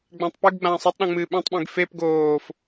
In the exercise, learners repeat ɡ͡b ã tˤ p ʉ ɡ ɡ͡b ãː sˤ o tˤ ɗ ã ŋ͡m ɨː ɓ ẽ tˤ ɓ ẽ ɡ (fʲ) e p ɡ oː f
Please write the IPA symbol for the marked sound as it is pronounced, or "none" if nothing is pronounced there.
f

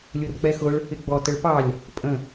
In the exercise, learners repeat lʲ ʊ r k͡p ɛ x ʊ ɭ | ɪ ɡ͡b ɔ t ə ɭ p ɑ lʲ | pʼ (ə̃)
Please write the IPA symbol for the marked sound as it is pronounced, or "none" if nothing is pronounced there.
ə̃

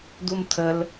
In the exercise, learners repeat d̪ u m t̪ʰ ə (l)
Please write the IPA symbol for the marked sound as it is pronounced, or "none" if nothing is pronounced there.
l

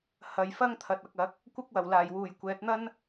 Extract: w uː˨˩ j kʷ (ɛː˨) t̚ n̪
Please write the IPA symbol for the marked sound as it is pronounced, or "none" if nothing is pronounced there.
ɛː˨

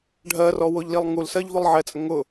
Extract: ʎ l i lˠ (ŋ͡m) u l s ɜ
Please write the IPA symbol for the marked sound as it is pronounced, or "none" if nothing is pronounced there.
ŋ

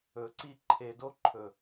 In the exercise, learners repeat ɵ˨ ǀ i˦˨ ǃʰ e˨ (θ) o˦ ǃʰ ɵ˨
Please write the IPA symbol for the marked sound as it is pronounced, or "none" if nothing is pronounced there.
d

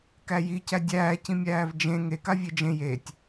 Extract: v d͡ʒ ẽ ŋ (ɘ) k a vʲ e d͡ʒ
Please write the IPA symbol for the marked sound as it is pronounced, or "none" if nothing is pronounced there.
e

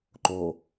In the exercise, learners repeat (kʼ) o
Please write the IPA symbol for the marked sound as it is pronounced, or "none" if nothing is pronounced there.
ǃ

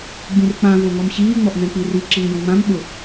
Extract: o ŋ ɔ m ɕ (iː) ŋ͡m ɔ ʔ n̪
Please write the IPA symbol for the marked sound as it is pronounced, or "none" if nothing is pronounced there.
iː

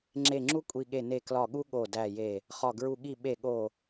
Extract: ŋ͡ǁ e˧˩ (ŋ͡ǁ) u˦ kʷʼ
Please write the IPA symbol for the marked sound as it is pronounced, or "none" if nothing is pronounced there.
ŋ͡ǁ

